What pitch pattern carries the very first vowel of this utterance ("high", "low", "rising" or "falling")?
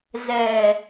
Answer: low